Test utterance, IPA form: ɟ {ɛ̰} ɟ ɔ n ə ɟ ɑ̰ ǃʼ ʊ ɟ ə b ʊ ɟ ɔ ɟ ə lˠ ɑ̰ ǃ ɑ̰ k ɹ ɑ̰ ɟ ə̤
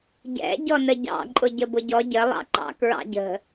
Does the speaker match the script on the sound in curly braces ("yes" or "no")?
yes